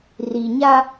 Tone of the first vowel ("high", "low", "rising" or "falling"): low